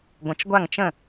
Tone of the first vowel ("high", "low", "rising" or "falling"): rising